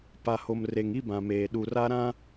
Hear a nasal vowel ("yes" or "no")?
yes